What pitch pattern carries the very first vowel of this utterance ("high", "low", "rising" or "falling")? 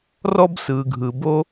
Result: high